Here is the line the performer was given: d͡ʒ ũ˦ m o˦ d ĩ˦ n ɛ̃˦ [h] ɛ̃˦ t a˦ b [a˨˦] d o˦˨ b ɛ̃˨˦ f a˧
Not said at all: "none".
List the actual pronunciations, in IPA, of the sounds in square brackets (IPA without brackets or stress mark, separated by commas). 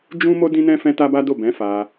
f, a˦